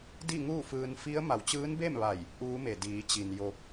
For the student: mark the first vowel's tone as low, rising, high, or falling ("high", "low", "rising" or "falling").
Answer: falling